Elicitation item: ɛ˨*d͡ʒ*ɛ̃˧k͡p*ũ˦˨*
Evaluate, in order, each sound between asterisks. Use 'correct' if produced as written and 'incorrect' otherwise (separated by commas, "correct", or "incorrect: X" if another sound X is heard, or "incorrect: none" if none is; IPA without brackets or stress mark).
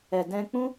incorrect: d, incorrect: ũ˦